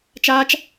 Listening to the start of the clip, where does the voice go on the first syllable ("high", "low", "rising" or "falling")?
high